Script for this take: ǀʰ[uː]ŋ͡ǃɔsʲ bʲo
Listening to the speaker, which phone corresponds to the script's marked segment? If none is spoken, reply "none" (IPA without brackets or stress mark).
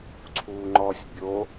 uː